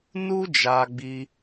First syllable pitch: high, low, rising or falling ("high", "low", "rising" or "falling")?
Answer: high